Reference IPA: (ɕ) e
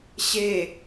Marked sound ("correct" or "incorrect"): correct